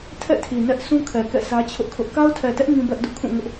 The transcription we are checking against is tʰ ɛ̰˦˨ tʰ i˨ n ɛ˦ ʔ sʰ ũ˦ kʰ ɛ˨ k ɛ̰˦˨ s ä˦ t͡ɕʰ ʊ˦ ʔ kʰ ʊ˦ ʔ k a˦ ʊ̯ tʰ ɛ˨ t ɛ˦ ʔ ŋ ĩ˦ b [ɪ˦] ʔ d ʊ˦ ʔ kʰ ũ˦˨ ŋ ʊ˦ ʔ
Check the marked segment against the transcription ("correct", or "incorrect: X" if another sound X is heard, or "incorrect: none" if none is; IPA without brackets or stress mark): incorrect: ɛ˦